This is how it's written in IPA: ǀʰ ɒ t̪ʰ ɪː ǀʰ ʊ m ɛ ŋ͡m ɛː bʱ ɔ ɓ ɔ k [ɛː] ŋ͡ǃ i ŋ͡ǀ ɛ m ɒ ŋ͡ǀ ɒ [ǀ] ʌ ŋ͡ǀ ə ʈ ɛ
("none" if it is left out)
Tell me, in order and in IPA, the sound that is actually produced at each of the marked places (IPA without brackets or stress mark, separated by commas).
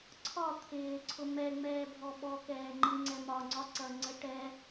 ɛː, ǀ